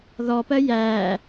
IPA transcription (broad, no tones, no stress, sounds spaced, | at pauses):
ð ɔ p ɜ j æ